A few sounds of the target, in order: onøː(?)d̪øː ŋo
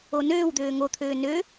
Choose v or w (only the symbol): w